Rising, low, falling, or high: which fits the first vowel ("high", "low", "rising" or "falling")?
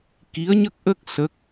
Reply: rising